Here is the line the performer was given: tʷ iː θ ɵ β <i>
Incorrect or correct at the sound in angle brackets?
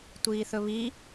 correct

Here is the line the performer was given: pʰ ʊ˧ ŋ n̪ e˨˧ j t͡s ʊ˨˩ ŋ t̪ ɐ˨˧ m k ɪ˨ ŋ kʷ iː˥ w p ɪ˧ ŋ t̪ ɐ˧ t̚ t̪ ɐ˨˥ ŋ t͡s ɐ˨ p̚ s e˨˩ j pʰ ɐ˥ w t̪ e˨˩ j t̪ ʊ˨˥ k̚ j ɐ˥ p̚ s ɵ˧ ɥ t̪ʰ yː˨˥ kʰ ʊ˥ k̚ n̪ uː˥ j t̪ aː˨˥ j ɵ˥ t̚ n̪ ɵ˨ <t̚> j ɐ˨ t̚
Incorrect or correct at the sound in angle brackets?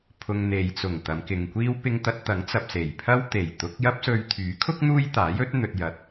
correct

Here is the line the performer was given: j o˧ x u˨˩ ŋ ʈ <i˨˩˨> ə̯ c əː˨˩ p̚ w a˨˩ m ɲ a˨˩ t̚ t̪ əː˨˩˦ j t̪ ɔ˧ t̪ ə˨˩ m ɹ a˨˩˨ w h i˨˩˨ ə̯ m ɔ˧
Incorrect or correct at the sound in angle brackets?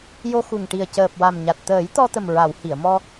incorrect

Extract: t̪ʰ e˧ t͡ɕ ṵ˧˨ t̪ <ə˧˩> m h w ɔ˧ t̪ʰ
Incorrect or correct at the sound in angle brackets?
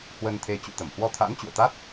correct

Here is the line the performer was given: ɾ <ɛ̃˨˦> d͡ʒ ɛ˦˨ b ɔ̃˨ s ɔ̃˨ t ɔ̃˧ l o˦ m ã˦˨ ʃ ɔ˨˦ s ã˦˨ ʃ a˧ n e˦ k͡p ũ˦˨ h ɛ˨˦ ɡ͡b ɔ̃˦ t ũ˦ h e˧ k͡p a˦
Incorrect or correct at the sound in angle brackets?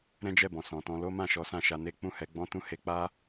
incorrect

